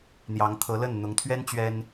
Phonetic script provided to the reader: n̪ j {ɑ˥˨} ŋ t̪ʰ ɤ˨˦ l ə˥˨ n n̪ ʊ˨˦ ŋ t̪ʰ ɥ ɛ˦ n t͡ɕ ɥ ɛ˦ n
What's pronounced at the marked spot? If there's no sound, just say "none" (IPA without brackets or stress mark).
ɑ˨˦